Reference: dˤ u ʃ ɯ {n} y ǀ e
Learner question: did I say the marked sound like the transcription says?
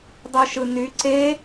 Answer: yes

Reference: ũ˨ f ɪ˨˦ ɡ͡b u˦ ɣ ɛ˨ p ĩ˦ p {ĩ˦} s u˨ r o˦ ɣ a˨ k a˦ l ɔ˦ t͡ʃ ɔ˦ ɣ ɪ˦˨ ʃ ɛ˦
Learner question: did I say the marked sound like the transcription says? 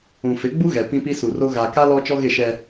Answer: no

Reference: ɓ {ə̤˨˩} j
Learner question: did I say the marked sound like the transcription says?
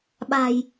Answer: no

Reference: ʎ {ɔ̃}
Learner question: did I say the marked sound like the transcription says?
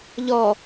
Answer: no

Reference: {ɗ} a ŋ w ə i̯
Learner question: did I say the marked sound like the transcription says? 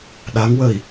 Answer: yes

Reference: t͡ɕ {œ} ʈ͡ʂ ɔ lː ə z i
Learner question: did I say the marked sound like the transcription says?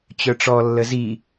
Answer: yes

